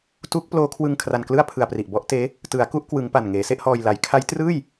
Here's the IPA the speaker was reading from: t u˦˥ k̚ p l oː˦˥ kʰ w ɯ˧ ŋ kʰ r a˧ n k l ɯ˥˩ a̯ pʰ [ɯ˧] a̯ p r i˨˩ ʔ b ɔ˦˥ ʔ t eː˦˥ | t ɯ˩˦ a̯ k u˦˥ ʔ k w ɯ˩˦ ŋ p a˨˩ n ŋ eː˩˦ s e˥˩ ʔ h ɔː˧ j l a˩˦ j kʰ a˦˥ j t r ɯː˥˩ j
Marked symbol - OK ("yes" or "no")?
yes